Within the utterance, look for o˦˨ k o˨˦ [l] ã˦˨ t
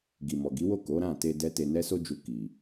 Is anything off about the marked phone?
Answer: yes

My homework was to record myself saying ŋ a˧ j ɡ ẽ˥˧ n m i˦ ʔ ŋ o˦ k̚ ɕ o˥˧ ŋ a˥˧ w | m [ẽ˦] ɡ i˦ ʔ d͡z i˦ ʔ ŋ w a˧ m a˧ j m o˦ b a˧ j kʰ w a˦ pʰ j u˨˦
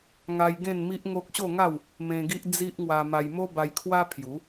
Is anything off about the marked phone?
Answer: yes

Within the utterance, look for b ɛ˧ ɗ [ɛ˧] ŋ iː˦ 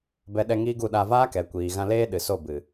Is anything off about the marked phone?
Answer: no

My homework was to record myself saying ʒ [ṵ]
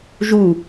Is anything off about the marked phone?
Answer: yes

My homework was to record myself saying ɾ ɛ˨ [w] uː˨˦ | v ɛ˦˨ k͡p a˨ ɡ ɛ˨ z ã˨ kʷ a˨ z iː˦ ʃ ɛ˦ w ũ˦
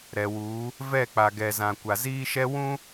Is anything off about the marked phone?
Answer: no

